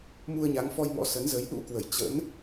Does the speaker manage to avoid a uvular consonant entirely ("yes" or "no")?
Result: yes